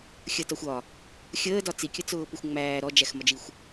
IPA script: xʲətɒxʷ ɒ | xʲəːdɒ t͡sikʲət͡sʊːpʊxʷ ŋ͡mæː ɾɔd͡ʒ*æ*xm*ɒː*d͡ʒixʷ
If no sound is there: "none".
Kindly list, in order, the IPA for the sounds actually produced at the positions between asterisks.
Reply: æ, ɒ

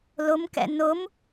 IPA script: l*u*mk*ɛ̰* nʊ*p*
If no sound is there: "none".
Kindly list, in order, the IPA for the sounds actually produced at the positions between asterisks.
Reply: ʊ, ɛ̰, m

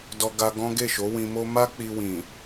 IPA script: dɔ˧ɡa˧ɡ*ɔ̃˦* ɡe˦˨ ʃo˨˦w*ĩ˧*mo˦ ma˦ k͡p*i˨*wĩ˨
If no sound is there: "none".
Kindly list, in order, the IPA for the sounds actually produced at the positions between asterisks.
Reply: ɔ̃˦, ĩ˧, i˧

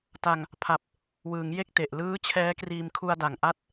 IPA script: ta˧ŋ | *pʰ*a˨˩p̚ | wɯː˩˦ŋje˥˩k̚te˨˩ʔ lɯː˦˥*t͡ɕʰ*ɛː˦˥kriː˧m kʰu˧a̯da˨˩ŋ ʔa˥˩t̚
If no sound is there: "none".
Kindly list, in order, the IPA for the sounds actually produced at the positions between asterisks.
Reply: pʰ, t͡ɕʰ

